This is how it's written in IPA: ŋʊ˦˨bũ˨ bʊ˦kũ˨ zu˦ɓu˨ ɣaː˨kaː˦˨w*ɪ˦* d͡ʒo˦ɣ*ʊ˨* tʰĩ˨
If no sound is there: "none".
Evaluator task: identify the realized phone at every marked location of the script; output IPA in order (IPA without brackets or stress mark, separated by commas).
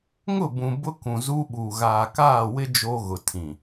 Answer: ɪ˦, ʊ˨